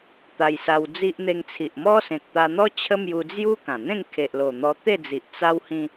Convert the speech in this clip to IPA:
t̪ a˧ j s a˧ w d͡z i˦ ʔ n̪ e˧ ŋ t͡sʰ i˨ ʔ m ɔ˦ s ẽ˨ k̚ t̪ a˧ n̪ ɔ˦ t͡ɕʰ ə˦ m j u˧ d͡z j u˦ k ã˨˩ n̪ ẽ˥˧ ŋ kʰ e˨ ʔ l o˨˩ n̪ ɔ˧ t̪ e˥˧ d͡z i˨ ʔ t͡s a˦ w h ĩ˧

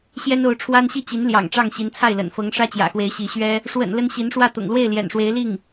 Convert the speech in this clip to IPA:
ɕ j ɛ˥ n o˧˥ ʊ̯ ʈ͡ʂʰ w a˥ n ɕ i˥˩ t͡ɕ i˧˥ n l j ɑ̰˨˩ ŋ ʈ͡ʂ ɑ˥˩ ŋ ɕ i˧˥ n t͡sʰ a˥˩ ɪ̯ l ə̰˨˩ n f ɤ˧˥ ŋ ʂ ä˥ t͡ɕ j ä̰˨˩ x w e˧˥ ɪ̯ ɕ i˧˥ ɕ ɥ ɛ˥ | ʂ w ə̰˨˩ n l ə˥ n ɕ i˧˥ n ʂ w ä˥˩ t̪ ʊ̰˨˩ ŋ l w e˥˩ ɪ̯ l j ɛ̰˨˩ n ʂ w e˧˥ ɪ̯ l i˥˩ ŋ

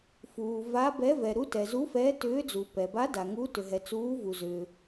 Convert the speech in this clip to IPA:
f uː˩ v a˨˦ b ɛ˨˦ v ɛ˩ ɾ u˨˦ t ɛ˩ z u˨˦ f ɛː˨˦ t ʏː˨˦ d͡z u˩ p ɛ˩ b a˨˦ d a˩ ŋ u˨˦ t ʏ˩ ɦ ɛ˩ t͡s uː˨˦ v u˩ z ʏː˩

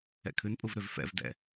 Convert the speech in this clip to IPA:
ɛ̰ kʰ ʉ n pʼ u v ɾ ʏ v f ɛ̰ v d ɛ̰

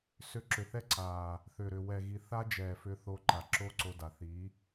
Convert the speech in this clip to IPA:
s ʏ˧ ǁ ʏ˨ θ ɛ˦ ǀ aː˨ | θ ʏː˨ ɾ ʏ˨ w ɛ˨ ɣ i˨ θ a˦ d͡ʒ ɛː˨ f ʏ˧ θ o˧ ǃ a˨ ǁ o˦ ǀ o˧ d a˨ θ i˨˦

